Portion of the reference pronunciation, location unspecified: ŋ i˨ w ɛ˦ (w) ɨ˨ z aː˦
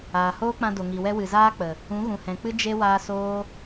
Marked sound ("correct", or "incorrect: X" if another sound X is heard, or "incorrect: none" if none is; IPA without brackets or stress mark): correct